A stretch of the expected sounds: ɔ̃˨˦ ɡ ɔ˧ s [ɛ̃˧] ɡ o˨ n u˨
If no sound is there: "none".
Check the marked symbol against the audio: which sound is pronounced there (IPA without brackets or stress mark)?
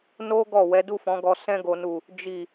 ɛ̃˧